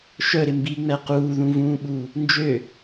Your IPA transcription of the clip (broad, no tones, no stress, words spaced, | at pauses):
ʃœɾɪ mbiŋ͡mɛ quːðũvũːɓuː | nd͡ʒø